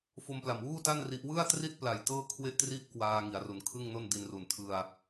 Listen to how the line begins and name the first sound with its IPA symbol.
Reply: f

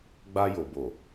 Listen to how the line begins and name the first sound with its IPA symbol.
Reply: ɡ͡b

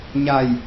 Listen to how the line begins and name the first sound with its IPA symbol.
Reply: ɲ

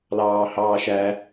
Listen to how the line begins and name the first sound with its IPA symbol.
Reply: l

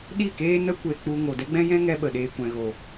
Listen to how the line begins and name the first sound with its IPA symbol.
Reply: ɗ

